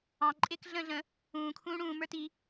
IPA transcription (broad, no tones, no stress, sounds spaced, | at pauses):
ɑ̃ ǃʼ ɪː k ɮ ə̃ː ɮ ə̃ | ũː kʰ ũː ɽ ũː m ə˞ t i